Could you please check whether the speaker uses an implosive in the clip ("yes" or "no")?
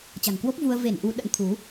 yes